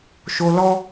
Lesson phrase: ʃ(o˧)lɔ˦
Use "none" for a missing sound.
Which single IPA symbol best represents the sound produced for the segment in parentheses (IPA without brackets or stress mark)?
o˧